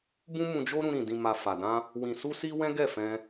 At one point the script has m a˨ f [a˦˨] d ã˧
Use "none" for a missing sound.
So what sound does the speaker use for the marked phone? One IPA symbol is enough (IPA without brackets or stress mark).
a˨